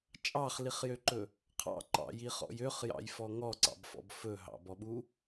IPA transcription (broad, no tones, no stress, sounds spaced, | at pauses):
t͡ʃʼ ɑ χ l i χ j ø ǃ ɵ | qʰ ɑ̰ ǃ ɑ̰ j i χ ɔ̰ j ø χ j ɑ̰ j f ɔ ŋ ɔ ǀ ɑ̰ b f ɔ̰ b f ɵ ɦ ɑ̰ b ɔ ɓ u